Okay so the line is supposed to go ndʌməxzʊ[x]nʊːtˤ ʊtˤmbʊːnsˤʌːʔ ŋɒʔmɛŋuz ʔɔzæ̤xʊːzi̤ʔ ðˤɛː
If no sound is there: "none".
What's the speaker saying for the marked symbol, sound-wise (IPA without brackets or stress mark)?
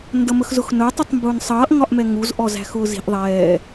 x